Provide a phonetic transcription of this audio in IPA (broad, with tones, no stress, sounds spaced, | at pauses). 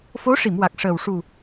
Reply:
f o˧˥ ʂ i˨˩˨ m w a˨˩ k̚ ʂ əː˨˩ w ʂ u˨˩